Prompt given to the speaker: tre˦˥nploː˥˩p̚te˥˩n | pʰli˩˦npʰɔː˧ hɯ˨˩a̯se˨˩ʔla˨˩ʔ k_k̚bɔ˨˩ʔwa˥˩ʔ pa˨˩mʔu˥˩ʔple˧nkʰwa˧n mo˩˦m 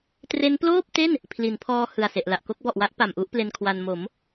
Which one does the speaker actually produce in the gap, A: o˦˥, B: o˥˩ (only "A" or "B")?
A